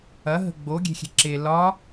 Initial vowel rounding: unrounded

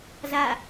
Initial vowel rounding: unrounded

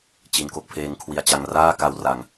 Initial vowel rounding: unrounded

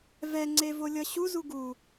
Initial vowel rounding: unrounded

